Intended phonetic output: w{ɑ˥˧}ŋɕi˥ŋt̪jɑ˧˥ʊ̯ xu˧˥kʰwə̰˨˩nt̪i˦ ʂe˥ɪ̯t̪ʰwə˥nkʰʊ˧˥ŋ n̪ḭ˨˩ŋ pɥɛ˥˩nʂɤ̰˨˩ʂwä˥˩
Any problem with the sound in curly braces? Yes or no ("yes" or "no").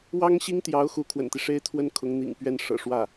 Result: yes